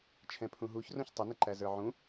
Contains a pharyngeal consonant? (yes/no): yes